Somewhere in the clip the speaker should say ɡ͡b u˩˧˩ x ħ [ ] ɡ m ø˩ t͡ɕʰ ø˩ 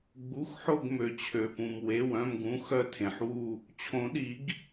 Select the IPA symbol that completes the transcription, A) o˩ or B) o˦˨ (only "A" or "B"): B